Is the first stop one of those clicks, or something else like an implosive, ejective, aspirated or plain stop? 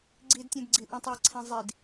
click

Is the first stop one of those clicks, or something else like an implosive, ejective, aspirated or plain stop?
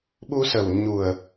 implosive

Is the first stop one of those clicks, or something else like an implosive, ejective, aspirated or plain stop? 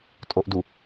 ejective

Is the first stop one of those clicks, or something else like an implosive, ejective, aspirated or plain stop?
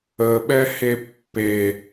implosive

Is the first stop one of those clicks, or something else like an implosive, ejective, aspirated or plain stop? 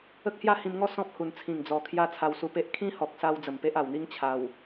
plain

